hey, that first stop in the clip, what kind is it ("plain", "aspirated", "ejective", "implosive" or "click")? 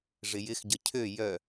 plain